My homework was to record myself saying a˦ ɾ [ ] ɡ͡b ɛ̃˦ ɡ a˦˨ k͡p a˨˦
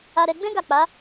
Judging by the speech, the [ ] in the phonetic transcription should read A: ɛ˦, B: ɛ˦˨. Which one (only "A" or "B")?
A